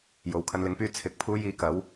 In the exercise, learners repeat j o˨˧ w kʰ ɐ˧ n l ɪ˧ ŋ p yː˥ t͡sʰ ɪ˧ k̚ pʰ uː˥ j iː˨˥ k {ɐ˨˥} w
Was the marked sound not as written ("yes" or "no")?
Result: no